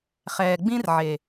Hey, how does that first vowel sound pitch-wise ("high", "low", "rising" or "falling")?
low